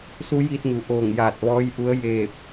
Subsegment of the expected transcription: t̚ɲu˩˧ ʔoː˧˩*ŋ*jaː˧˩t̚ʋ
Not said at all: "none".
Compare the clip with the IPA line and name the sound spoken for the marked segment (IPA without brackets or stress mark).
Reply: ŋ